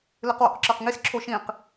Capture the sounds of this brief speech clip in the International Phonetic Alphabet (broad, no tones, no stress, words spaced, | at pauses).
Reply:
lɨqwo̰qǁə˞qŋis ǁʰoʃĩq